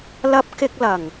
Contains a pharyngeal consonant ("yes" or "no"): no